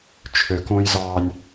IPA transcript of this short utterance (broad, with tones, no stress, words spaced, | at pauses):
t͡ʃʰø˨kõ˦jzɑː˦nʲ